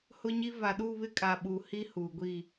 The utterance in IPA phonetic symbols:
hʊ˦ɲi˦ va˨ɗuː˦˨βɪ˦ kʼa˨ɓu˨ hi˦ huː˨ɡʷiː˦˨

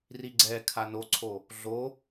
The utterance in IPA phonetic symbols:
riɡ͡ǀɛkʰa noǀʰo | ɮo

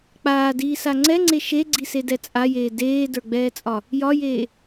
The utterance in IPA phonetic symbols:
k͡paːdiːsa ŋ͡ǀɛŋ͡ǀe ʃeɡ͡ǀisedɛ t͡sʼajeː deːdə˞ɡ͡bɛːt͡sʼɒ | jɒjeː

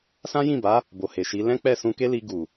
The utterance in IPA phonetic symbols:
sã˦jĩ˦˨ba˨˦ | bo˨ he˨ʃi˨˦ lɛ̃˦k͡pɛ˦˨ sũ˧ke˦li˧ ɡu˨

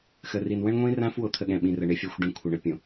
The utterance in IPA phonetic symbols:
xə˨ri˨n wə̃˦ɳŋʷĩ˦rã˦f wo˦t̪ʰə˦ɠɛ̃˨ɓĩ˨ rə˨ɳɪ˦ fʲa˦xʷɖɛ̃˦ kʷʰə˨ɳə˦ pʲõ˨

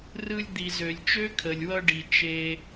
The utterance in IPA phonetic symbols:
rɯ˧lʲd̪i˨ zø˨lʲt͡ʃø˦kʰə˨lʲwʌ˧ ɖi˨t͡ʃe˧

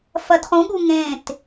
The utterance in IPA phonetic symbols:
fɐdχũɠu ŋẽt

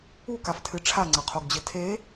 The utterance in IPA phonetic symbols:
ukaftʰɨ ʈ͡ʂʰaŋ͡ǀɐqʰoɡd͡ʑɨ tʰe

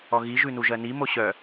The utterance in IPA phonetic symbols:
ɔɣiʒʉ nuʒɜnimo ɕœ

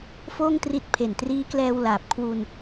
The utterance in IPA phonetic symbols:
foː˥˩ŋtri˦˥t̚pʰe˨˩n triː˦˥klɛː˧w laː˨˩p̚kʰwu˧n

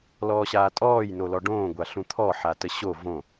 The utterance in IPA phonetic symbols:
lɔːɕaːtʼɔːj nolɔɖõːɡʷa ɬũt̪ʰɔ ħatəɕo võ

